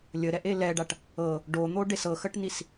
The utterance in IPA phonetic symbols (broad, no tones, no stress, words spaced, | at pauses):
lʲəɾɛʔe lɛɖaʈ | ɤ | ɖon̪oɖes ɤxəʈnis